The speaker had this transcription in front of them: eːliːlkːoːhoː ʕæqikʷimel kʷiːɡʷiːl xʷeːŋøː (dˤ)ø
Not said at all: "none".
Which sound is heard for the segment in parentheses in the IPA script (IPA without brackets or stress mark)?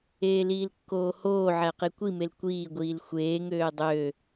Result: dˤ